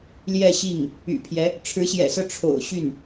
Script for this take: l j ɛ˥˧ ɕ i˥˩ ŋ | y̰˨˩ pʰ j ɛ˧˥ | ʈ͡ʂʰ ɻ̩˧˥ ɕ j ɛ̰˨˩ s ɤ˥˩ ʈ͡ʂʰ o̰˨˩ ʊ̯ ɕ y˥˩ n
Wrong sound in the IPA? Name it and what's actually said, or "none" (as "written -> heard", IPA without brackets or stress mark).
none